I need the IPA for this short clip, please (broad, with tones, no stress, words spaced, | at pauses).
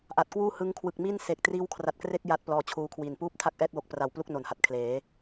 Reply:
ʔa˨˩t̚kwuː˥˩hɯ˦˥ŋ kʰwɯ˨˩k̚mi˥˩n se˨˩k̚ triː˦˥wkʰra˨˩t̚kre˥˩k̚ ja˥˩t̚plɔː˧t͡ɕʰuː˦˥kʰwi˨˩n puː˥˩p̚tʰa˥˩k̚ʔɛː˥˩t̚wo˨˩k̚ pra˨˩wplu˥˩k̚ no˩˦nha˨˩t̚kʰleː˩˦